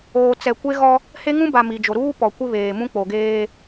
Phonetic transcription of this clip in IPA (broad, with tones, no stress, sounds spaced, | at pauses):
oː˨ t͡s ɛ˨ kʷ e˦ ɣ ɔ˦ | h e˦ ŋ ũ˦ b a˨ m i˨ d͡ʒ o˨ ɾ uː˦ p ɔ˨ kʷ ɪ˦ β eː˨ m ũ˦ k͡p o˨ ɡ eː˦